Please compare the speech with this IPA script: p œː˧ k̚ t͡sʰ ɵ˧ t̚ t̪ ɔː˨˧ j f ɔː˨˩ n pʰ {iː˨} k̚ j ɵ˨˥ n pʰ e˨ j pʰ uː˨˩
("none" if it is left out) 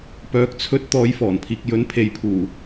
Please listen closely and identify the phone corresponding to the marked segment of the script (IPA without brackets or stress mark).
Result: iː˨